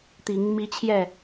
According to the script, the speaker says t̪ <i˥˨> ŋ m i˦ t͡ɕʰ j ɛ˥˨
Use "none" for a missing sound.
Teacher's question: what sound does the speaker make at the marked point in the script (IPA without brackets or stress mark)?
i˨˦